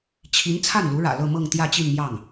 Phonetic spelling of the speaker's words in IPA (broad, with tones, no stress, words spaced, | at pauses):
t͡ɕʰi˧˥n t͡sʰa˥˩nlu˧˥ɻä̰˨˩ lɤ˥˧mɤ˥˧ŋ t̪jä˥˧t͡ɕi˥˧nmjɑ˥˩ŋ